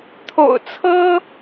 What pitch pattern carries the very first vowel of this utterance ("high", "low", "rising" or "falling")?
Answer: low